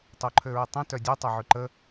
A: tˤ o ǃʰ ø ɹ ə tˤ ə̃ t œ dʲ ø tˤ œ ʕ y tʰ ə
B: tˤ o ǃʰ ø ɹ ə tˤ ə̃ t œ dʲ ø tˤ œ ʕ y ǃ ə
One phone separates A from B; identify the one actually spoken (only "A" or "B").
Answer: B